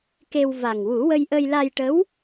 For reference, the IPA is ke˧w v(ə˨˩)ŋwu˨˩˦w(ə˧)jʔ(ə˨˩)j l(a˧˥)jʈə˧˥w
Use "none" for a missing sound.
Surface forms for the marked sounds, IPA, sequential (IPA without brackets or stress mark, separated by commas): a˨˩, ə˧, ə˧, a˧